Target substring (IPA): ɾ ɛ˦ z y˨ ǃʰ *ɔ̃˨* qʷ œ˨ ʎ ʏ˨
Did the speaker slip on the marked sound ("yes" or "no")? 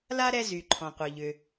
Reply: no